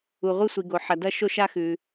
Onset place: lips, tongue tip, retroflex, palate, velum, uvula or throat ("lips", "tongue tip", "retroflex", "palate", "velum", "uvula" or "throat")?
uvula